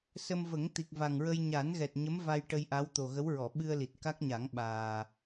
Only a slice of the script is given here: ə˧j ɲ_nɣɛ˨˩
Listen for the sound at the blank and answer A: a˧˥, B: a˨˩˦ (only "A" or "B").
B